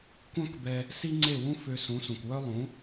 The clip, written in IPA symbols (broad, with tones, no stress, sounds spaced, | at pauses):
kʷ œ̃˥ k b ɛ˧ | s i˥ ŋ͡ǀ e˥˩ w ũ˥ f ø˧ s ũ˩˥ s ũ˩ kʷ w œ˥ lˠ ũ˩˥